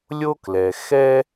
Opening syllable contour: high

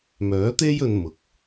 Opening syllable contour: rising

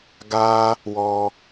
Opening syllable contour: high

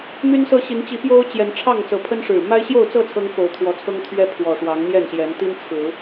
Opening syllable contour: high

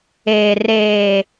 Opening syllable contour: low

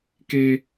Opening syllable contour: high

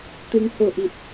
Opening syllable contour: rising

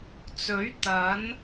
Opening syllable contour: rising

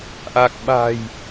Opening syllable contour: low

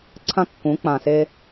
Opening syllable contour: high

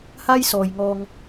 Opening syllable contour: high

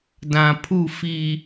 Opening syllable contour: low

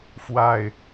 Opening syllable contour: low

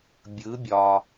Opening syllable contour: rising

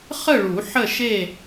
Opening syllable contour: falling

